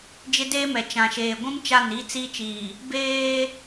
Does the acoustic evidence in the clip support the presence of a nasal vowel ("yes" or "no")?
yes